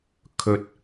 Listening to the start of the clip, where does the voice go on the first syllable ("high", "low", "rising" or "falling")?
low